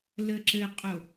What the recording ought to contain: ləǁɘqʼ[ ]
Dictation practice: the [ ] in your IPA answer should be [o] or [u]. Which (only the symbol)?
o